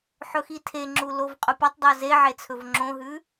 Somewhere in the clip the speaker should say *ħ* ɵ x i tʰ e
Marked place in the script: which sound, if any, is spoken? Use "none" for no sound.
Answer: ħ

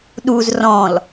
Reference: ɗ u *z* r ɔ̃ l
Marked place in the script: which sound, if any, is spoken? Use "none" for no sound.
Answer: z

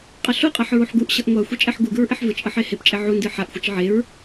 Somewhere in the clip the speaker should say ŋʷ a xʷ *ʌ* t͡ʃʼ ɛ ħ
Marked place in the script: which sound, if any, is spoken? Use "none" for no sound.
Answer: ʌ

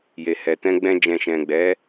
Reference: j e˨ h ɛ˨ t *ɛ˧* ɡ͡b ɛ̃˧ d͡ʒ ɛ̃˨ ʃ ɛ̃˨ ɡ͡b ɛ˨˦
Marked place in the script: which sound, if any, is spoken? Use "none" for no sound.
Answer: ɛ̃˧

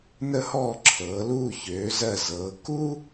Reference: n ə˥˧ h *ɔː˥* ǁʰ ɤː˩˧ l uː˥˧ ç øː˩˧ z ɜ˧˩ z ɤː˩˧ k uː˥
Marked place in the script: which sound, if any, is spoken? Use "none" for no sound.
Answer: ɔː˥˧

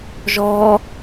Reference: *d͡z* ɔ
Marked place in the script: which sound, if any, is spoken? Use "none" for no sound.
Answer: ʒ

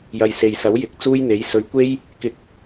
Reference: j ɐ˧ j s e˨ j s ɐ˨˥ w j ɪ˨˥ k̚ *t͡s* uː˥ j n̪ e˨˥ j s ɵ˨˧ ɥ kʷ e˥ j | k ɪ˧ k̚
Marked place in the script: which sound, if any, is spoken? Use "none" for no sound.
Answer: t͡s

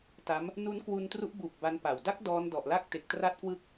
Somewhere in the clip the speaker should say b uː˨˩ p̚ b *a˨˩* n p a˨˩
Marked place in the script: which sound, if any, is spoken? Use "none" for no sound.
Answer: a˦˥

